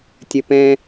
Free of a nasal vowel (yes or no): no